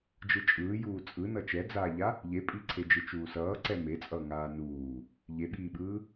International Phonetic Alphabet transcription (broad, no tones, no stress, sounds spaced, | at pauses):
d͡ʒ ɯ t͡ʃʼ ɯː j uː t͡sʼ ɯ n ʌ t͡ʃ ɛ d͡z aː ʎ a | ʎ e pʼ i ǀʰ e d͡ʒ ɯ t͡ʃ uː s ʌː ǀ ɛ m e t͡sʼ ʌː ŋ aː n uː | ʎ e ɓ iː ɓ ɯː